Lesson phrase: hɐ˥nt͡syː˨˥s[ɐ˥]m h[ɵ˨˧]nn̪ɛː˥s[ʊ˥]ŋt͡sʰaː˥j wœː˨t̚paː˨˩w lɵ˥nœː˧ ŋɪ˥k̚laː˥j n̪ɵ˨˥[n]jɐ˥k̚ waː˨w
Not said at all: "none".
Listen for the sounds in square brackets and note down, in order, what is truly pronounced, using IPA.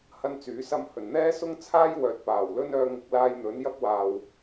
ɐ˥, ɵ˨˩, ʊ˥, n

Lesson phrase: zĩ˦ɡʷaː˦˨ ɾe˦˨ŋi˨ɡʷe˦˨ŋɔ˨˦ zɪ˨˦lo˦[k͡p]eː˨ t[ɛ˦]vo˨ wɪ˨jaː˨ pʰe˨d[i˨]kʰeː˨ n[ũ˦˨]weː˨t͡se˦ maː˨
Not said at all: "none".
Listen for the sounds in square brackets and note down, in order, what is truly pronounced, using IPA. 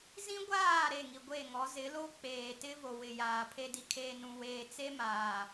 k͡p, ɪ˦, i˨, ũ˨

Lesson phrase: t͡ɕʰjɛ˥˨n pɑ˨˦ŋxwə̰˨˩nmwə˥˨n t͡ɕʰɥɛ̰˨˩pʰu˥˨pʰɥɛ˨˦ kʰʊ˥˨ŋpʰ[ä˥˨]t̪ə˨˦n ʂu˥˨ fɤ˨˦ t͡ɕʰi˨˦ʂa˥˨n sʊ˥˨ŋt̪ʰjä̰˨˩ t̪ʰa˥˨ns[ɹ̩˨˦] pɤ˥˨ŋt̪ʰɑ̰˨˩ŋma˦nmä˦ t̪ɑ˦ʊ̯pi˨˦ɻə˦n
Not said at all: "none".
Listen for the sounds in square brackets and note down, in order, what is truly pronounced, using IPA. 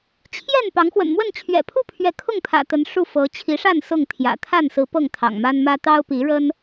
ä̰˨˩, ɹ̩˨˦

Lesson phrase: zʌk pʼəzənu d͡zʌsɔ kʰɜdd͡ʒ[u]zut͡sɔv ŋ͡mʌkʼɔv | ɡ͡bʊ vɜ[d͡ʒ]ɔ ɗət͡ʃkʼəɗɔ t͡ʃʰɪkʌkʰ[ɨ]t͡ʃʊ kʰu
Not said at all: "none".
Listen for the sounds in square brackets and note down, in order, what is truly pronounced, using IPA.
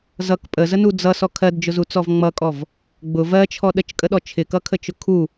ʊ, t͡ʃʰ, ə

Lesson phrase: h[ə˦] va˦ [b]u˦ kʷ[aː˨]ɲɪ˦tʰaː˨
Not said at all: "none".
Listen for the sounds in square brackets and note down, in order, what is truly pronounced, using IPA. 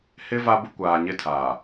ɪ˦, b, aː˨

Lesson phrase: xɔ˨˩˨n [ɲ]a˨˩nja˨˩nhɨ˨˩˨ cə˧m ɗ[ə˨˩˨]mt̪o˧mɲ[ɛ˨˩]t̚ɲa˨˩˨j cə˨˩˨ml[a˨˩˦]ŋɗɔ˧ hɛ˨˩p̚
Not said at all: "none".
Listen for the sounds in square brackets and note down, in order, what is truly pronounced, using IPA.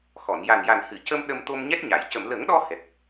j, ə˧, ɛ˦˥, ə˨˩˦

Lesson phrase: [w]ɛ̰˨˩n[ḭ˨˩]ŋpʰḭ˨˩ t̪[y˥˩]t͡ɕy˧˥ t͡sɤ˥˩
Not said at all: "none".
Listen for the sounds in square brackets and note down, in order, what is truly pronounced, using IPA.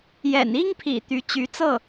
j, i˥, y˧˥

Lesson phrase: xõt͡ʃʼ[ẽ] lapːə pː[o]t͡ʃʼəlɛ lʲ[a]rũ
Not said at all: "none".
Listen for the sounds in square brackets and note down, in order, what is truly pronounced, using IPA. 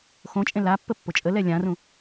ẽ, o, ã

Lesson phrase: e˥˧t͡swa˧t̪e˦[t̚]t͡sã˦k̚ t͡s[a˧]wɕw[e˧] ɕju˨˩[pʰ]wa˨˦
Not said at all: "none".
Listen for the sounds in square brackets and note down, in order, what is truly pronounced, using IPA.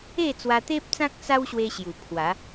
p̚, a˦, e˧, pʰ

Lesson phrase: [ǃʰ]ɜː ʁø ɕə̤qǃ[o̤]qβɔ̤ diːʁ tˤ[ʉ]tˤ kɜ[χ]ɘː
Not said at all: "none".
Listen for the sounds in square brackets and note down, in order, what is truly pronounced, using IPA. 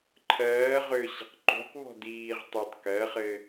ǃʰ, o̤, ʉ, χ

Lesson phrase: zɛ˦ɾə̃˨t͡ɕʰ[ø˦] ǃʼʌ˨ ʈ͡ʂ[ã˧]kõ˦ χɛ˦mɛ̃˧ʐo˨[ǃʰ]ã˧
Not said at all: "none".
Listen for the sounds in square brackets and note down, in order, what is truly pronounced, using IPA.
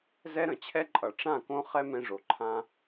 ɛ˦, ã˦˨, ǃʰ

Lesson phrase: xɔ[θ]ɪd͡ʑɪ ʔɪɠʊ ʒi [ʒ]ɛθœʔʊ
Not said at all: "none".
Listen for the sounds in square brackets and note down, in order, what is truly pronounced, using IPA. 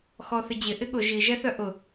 θ, ʒ

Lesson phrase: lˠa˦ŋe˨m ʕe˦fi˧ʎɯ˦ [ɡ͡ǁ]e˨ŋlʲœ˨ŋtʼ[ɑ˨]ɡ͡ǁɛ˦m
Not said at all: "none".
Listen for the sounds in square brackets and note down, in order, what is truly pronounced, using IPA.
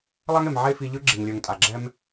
ɡ͡ǁ, a˨

